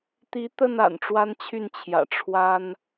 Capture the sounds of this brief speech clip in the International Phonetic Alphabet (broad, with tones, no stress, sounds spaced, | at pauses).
t̪ i˨˦ t̪ ə˥˨ n a̰˨˩ n ʈ͡ʂ w a˦ n t͡ɕʰ y˥˨ n t͡ɕʰ j ä̰˨˩ ʈ͡ʂʰ w a˦ n